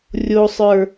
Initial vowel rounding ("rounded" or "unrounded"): rounded